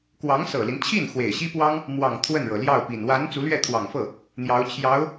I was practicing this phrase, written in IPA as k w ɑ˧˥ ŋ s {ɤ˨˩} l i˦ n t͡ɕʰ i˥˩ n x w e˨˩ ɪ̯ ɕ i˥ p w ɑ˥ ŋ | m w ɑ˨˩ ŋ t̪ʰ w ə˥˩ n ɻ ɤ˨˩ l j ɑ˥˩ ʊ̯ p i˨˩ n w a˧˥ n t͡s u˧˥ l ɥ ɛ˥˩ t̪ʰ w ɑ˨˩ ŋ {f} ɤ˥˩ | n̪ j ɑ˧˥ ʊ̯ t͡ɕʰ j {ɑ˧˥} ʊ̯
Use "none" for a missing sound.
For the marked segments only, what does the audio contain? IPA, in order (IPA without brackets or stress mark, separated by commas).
ɤ˨˩, f, ɑ˧˥